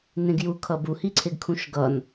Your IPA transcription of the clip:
nẽɡju kʰʌbu hiǀʰeɡkʰũʃɡʌn

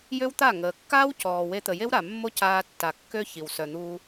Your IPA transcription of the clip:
jø˦wt̪a˦˨ŋəː˨ kːaː˦wcɔː˨we˧t̪ə˨ je˦wɾa˨mːo˦ caː˧tːa˨kːø˦ çi˨w sœ˨n̪uː˧

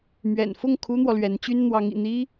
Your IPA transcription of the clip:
mɥɛ̰˨˩nfʊ˥˩ŋ kʰu˥n̪wɔ˨lɥɛ˧˥nt͡ɕy˥n n̪wɑ˧˥ŋḭ˨˩n̪i˥

